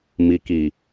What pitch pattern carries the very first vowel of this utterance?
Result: low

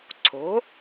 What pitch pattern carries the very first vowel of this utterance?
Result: rising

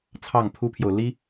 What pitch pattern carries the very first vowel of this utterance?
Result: falling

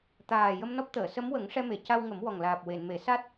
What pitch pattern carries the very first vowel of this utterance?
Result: low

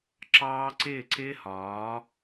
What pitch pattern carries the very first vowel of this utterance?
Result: high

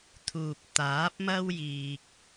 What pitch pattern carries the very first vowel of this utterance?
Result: low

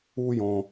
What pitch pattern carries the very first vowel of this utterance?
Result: high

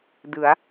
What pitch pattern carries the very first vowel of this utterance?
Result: rising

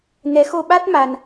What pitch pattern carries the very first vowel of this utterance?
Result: rising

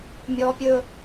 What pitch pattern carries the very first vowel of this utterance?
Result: high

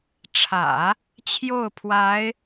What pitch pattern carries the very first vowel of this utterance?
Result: low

